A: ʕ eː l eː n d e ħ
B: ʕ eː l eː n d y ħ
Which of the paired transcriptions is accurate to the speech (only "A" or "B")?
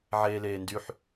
B